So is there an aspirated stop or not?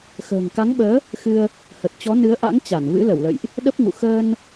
no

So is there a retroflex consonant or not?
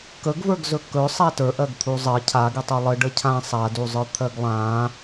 yes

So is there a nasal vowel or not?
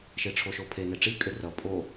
no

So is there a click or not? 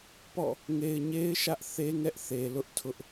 no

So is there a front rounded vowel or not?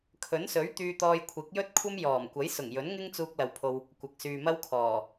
yes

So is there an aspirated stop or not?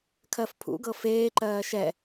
yes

